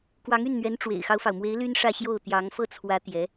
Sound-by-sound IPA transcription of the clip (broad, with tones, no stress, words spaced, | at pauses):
kwɑ˧˥ŋy˥˩nn̪ɥɛ˧˥n ʈ͡ʂwḛ˨˩ɪ̯xɑ˦ʊ̯fɑ˩ʊ̯mwe˧˥ɪ̯ ly˥nʂä˥˧ ɕjo˥˩ʊ̯ t̪jɑ˧˥ŋ fɤ˥˩t͡sʰwä˧˥ t̪jɛ˧˥